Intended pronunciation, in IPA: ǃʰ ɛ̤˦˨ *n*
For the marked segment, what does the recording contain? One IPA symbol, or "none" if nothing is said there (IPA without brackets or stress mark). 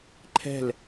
l